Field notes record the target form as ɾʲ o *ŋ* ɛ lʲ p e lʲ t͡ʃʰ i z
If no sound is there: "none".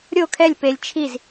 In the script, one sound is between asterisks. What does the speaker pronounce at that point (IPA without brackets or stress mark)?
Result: kʰ